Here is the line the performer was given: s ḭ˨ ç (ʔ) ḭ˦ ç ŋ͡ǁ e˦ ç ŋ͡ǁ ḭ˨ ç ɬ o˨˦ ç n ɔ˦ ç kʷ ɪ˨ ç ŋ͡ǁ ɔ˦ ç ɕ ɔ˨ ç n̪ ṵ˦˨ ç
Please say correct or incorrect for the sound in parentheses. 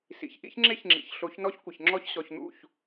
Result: correct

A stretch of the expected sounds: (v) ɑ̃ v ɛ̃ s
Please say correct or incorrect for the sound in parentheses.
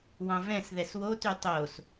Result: incorrect: w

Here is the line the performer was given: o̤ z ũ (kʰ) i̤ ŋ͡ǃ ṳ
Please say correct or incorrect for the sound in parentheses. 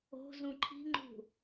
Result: incorrect: ǃʰ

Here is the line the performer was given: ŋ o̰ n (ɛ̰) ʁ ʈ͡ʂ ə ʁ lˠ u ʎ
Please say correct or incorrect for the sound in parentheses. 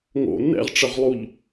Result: correct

